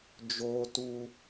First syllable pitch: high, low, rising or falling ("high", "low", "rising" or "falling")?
low